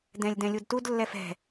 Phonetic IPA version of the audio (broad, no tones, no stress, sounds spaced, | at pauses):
d ɛ̃ lʲ d ɛ̃ lʲ u d t u d lː ɛ f ɛ̤